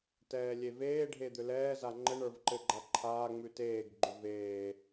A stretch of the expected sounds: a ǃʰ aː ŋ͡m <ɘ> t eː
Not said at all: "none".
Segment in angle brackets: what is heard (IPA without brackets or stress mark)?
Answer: ʉ